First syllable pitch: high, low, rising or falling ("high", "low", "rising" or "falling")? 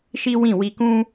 high